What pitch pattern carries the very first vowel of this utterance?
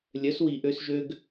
rising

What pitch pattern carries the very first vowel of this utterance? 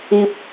low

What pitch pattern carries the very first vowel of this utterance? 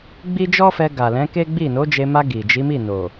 high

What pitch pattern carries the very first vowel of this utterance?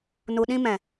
low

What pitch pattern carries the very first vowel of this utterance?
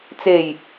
low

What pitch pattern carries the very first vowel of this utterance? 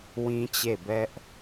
high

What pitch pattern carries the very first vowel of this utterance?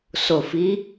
low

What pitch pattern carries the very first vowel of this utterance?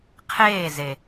falling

